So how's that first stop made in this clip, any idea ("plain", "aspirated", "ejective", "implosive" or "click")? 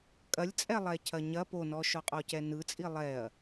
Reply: ejective